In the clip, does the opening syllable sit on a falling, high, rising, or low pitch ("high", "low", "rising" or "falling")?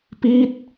falling